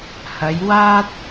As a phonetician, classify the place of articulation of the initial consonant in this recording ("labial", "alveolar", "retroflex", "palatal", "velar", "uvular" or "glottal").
glottal